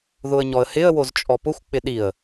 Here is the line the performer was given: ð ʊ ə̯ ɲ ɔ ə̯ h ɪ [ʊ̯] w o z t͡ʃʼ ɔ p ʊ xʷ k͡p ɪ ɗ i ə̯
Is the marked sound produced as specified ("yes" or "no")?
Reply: no